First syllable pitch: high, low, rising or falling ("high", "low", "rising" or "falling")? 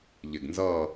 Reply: low